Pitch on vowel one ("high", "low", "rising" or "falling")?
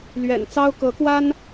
low